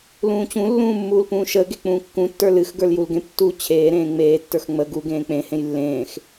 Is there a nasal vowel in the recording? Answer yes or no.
yes